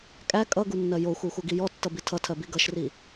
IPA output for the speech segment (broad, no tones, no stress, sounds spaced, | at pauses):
kʼ æ kʼ ʌ ɡ u nː ɜ j o xʷ ɜ xʷ ʌ ɡ i j ɔ tː ʌ b i tʰ ʌ tʰ ɜ b i ɡ ʌ ʃ r i